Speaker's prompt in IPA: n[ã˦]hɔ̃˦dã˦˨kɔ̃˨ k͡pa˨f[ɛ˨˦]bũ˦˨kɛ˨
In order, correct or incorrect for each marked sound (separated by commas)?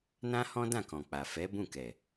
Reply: correct, correct